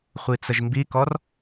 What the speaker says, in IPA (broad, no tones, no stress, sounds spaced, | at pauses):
χʷ i t͡s ə ʒ m b i k ɔ r